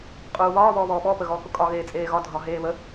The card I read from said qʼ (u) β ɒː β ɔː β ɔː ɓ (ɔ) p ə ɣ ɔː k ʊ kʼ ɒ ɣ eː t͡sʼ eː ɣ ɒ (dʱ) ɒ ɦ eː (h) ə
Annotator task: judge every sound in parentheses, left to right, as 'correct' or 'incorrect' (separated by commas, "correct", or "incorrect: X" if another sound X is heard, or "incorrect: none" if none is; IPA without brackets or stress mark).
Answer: incorrect: uː, correct, correct, incorrect: β